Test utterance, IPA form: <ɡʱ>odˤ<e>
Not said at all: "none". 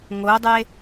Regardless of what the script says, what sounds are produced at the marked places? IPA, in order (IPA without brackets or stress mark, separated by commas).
ŋ, e